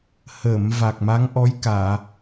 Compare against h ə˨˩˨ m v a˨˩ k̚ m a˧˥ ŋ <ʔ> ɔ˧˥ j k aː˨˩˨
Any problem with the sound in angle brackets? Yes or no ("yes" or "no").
no